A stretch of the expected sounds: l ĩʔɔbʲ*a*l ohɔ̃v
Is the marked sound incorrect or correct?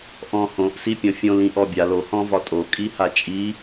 correct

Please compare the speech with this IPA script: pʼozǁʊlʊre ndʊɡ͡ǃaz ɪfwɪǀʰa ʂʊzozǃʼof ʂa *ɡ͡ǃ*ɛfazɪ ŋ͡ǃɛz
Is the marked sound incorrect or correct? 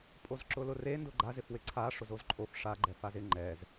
correct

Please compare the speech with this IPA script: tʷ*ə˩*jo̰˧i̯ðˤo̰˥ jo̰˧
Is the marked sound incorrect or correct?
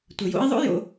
correct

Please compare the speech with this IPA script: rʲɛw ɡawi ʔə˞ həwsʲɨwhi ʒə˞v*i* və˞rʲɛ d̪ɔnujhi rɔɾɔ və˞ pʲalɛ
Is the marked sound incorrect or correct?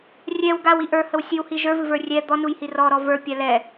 incorrect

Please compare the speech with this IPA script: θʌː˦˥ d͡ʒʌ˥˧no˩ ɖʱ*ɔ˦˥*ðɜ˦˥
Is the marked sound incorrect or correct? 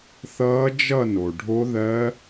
incorrect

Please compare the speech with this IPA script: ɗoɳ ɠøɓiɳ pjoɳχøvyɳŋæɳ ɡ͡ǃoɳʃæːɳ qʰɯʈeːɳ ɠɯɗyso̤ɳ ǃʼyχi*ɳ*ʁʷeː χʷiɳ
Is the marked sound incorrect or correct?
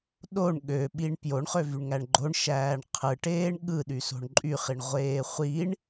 correct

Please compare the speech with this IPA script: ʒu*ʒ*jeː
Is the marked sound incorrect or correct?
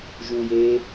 incorrect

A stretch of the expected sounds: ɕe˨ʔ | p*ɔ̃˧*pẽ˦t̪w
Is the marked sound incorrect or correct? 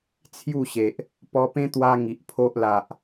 incorrect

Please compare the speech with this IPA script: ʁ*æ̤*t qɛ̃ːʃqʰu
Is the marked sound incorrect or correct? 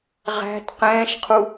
correct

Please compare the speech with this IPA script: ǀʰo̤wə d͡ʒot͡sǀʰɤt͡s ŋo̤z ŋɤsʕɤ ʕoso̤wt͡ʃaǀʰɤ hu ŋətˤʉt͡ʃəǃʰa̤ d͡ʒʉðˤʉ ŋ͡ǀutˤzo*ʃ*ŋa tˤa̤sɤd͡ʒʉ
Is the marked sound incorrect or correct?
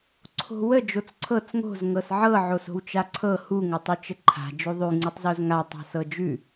incorrect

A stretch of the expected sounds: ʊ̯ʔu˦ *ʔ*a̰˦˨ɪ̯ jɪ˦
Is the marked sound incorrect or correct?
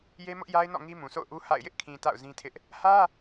incorrect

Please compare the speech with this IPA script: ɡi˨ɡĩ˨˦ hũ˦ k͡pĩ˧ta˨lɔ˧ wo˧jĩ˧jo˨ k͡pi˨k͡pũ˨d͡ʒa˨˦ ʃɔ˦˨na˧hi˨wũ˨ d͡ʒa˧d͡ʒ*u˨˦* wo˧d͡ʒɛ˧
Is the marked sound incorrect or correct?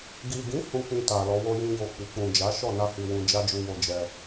incorrect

